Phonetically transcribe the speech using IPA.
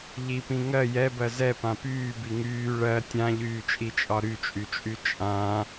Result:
ʎ i p ĩ ŋ ɜ j ɛ b ɜ z ɛ p ã p yː b i ŋ yː ɭ ɜ tʲ ã ʎ yː t͡ʃʼ i t͡ʃʼ ɒ ɾ y t͡ʃʼ y t͡ʃʼ y t͡ʃʼ ã

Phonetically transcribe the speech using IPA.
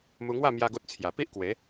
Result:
m u˧ ŋ w a˥˧ m j a˦ ɡ o˦ t̚ t͡sʰ j a˨˩ p i˦ ʔ k w e˨˦

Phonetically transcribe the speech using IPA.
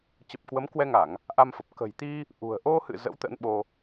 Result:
t͡ɕ ə˨˩ p̚ k w ə˨˦ m k w ɛ˧ ŋ a˧˩˨ ŋ | ʔ a˧ m f ə˨˩ p̚ k ə̤˨˩ j t̪ i˧ | ʔ ṳ˨˩ ə̯ ʔ o˧ h ɨ̰˧˨ z ə̰˧˥ w t̪ ə̰˧˥ n ɓ o˧

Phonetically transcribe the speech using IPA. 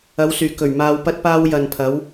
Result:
ɐ˨˧ w s yː˨˩ k ɵ˨˩ ɥ m aː˧ w p ɐ˥ t̚ p aː˥ w j ɐ˨ n pʰ ɐ˨˧ w

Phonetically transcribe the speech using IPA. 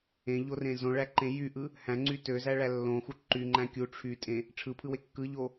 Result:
ẽ ʎ o r ẽ z õ ɭ æ ǃ ẽ j y ʔ ɯ | h æ̃ ŋ͡ǀ y t ø z æ ɭ æ lː õ x u ǃ y ŋ͡ǃ æ̃ kʲ u ʈ͡ʂʰ y tʼ ẽ | ʈ͡ʂʰ ɯ pʰ ɯ w e kː ɯ ʎ o

